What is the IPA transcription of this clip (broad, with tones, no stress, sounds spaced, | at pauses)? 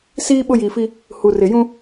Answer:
s iː˦ ɓ ʊ˦ j iː˨ f i˦ | h u˨ r ɪ˨ j ũ˦